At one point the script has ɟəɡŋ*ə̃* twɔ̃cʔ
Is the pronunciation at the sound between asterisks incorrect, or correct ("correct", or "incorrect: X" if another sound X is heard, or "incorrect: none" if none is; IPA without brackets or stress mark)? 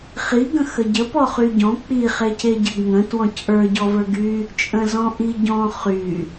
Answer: correct